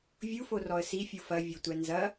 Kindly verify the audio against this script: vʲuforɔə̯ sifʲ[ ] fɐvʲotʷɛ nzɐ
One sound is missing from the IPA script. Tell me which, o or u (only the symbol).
u